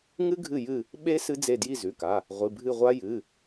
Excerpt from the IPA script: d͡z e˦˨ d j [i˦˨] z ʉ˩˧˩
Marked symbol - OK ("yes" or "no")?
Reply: yes